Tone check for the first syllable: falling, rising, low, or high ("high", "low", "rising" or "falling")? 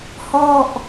falling